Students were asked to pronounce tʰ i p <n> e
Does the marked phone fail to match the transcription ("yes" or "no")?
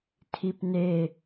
no